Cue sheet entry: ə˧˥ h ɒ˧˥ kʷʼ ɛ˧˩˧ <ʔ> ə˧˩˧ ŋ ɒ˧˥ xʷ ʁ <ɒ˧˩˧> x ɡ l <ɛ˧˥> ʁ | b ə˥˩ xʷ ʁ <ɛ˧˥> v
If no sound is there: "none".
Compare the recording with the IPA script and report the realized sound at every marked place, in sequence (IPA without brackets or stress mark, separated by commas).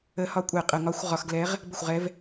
qʼ, ɒ˧˩˧, ɛ˧˥, ɛ˧˥